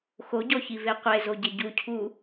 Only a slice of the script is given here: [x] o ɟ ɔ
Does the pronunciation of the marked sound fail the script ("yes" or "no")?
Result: no